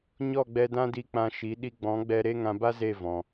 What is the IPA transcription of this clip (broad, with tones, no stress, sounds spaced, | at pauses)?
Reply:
ɲ ɔ˦˨ ɡ͡b ɛ˧ d ã˦ d i˧ k͡p ã˧ ʃ i˨˦ ɗ i˧ ɡ͡b ɔ̃˨˦ ɡ͡b ɛ˧ ɾ e˦ ŋ ã˧ b a˦ z e˦˨ v ɔ̃˧